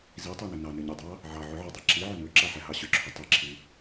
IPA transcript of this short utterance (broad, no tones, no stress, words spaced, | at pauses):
zitˤinʏ nɑnʏɲidˤɑ | ʕɑ ʕʏʕʏdˤa ǁiʕʏ mʏǁaħɛɦɑ ɕʏǁʰʏ tˤiǁʰi